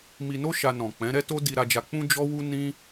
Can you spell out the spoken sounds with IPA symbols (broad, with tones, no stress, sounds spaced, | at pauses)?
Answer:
m i˧ n o˦ ʃ a˧ n ɔ̃˨ k͡p ɛ̃˨˦ ɾ ɛ˦ t o˦ d i˧ ɾ a˧ d͡ʒ a˧ k͡p ũ˦ d͡ʒ ɔ˦ w u˦ n ĩ˦